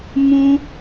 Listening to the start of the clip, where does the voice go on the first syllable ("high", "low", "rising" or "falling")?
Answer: low